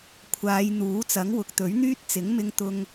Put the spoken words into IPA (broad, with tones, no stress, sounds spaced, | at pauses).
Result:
kʷʰ aː˨˧ j n̪ uː˨˥ t͡s ɐ˨˥ ŋ w ʊ˨ k̚ t̪ ɵ˨˥ ɥ n̪ yː˥ t̚ t͡s ɪ˨˥ ŋ m ɪ˧ ŋ t̪ ʊ˧ ŋ